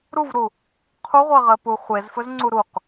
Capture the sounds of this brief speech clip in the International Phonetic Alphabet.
ɾuvɾu | qʰuʁʷɜʁɜpu χʷezfɵzŋ͡ǀu ɾuq

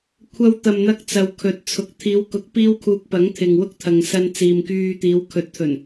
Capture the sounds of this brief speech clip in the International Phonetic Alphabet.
kʷʰɐ˧wt̪ɐ˨mn̪ɐ˧k̚ t͡sɐ˨wkʰɵ˨˥t̚ t͡sʰʊ˨k̚ t̪ʰiː˨˧wkʊ˨˥k̚ piː˥wkʰuː˧k̚ pɐ˨˥ŋt̪ʰɪ˨ŋwʊ˥k̚t̪ʰɐ˨ŋ sɐ˧nt͡siː˨mkyː˧t̪iː˨˧w kʰɵ˨˥t̚t̪ʰɵ˨˩n

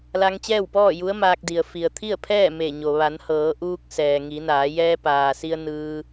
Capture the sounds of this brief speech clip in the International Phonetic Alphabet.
la˧ŋt͡ɕɛː˥˨wpɔː˥˨ ju˧˥ə̯maː˧k̚di˩ə̯ fi˩ə̯t̪ʰi˥˨ə̯pʰɛː˥˨ me˧˩ ɲo˩ ʋa˩˧nhɤː˩˧ʔuː˧k̚ sɛː˩ŋi˩˧naː˩˧ jɛː˧paː˩si˧ə̯ nɯː˧

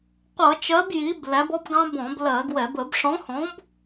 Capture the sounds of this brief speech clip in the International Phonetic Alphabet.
qʷʌ˧˩˧t͡ʃɜ˨˥b ji˨˥b læ˨˥bɔ˦˥bɡɑ̃˦˥ bɔ̃˧˩˧blɜ˧˩˧ɡwɛ˧˩˧b ə˧˩˧bʂɔ̃˨˥hɔ̃˨˥b

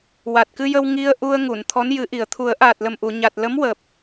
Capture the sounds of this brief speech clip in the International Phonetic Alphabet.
wa˨˩t̚kɨ˧jə˧w ŋi˧ə̯ ʔu˧ə̯ŋu˨˩˨n t̪ʰɔ˧˥njɨ˨˩˦ʔi˨˩ə̯ t̪ʰu˨˩˦ə̯ʔaː˨˩t̚lə˨˩mʔu˨˩˨ ɲa˨˩t̚lə˧˥mwəː˨˩p̚

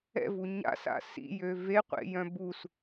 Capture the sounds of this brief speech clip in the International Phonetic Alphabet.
ɛ̰vu ɲa̰sa̰ sḭjø veqʷḛjœ̃ bus

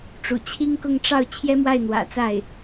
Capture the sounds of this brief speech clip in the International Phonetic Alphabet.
ʈ͡ʂṵ˨˩t͡ɕʰi˥ŋkʊ˥˧ŋ ʈ͡ʂɑ˥˩ʊ̯ t͡ɕʰjɛ˥mwa˥˩ɪ̯n̪wä̰˨˩ t͡sa˥˩ɪ̯

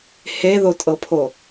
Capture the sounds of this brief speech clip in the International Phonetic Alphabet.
heðotʼɤpʰo

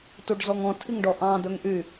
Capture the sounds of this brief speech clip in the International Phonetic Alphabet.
tuɖzɔŋɔ̃ tʰiŋɖɔʔɑ̃ dɵŋʔy

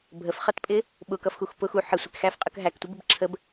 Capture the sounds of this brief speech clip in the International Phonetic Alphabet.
bʱəfχʌtpʼɪ | ɓʊkʌfxux pʊx u ħə sʷɪkxæfqʼək ɦæktʷəbɪb ǁʰəb

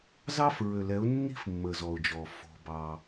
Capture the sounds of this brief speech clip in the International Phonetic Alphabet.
zɑ˦fɹø˨lɛ˨˦ʊ̯ nːi̤˦fmːə˨zɔ˨ʊ̯d͡ʒɔ˨ fo̤˦ bɑ˦

